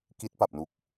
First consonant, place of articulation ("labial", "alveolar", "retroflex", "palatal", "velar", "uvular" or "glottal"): velar